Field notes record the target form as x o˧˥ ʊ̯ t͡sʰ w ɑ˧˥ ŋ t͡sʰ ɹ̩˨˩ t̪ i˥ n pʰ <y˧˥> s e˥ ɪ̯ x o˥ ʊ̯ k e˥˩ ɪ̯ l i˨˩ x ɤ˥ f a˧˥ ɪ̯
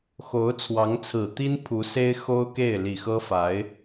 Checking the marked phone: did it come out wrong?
yes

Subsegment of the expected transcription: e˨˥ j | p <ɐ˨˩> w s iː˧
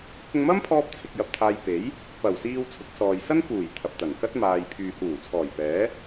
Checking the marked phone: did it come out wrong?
no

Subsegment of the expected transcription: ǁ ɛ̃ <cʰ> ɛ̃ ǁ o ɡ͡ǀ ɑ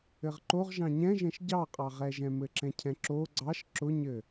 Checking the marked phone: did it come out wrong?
no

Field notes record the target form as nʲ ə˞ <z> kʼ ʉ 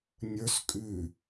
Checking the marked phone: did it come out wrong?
yes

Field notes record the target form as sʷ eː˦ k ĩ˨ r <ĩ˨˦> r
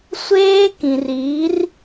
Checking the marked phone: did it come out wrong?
yes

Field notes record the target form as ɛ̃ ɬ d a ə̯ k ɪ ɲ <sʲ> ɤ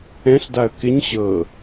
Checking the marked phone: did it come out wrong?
yes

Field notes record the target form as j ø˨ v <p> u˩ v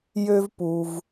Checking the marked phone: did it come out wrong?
no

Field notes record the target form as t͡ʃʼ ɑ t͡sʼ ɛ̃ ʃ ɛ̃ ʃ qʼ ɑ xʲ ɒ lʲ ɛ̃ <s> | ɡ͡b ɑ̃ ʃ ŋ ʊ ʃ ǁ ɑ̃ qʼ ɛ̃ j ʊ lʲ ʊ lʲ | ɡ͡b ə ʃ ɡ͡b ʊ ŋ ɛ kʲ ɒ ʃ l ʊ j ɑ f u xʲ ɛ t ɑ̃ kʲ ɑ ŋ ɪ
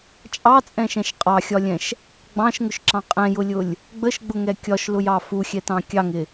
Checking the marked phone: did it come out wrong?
yes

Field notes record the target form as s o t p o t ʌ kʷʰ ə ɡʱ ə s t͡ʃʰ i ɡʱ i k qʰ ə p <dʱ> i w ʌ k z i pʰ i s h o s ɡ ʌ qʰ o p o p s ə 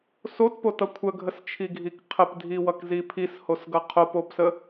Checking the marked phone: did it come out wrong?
no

